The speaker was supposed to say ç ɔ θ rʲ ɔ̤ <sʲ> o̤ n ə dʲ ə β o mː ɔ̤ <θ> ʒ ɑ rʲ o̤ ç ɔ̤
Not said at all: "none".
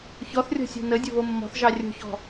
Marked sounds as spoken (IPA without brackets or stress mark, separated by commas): sʲ, θ